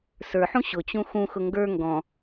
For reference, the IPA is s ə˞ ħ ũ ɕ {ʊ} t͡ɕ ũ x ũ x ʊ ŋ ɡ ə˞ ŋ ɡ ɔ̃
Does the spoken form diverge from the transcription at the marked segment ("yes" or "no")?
no